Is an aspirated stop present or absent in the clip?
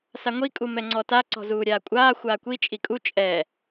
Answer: absent